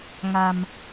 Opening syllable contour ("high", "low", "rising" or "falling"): low